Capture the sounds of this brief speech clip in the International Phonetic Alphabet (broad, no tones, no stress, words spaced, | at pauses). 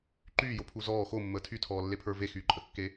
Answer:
ǃyːjopʰu zɔː xomːəː tʰytʰɔːlːepʰə˞ vexyːǃʼəkːe